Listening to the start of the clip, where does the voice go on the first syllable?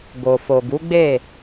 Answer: low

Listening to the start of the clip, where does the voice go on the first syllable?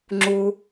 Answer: high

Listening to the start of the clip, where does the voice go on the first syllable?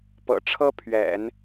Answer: low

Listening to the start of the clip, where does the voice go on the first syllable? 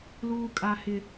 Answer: high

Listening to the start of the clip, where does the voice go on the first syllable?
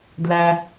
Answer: high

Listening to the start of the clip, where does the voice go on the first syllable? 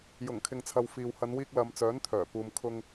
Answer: low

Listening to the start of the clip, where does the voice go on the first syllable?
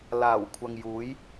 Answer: low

